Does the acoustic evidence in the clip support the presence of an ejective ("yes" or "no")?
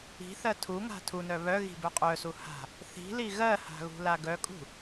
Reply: yes